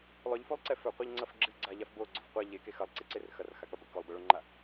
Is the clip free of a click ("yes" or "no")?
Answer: no